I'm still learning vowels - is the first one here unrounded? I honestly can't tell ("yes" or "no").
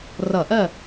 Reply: yes